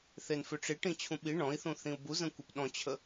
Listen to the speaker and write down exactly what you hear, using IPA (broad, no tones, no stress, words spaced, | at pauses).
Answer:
θenfʏʈ͡ʂiʈĩ t͡ɕʰũɓi ɳɔ̃i̯θũ θĩu̯buzə̃ kʷipɗɔ̃t͡ɕʰə